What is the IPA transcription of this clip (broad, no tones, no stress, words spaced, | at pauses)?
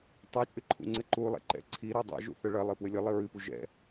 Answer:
tˤit͡ʃʼɨǃʰṵŋ͡ǀɘ ǃulˠɛ̰ǃɛ̰ ǀʰiɾu dˤɛ̰ʒṵθɐ ɭɐlˠɘpwɘ lʲɘlˠɘ ɹɨpu ʒɛ̰